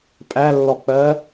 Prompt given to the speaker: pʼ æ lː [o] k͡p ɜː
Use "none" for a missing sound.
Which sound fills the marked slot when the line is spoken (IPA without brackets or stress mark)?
ɔ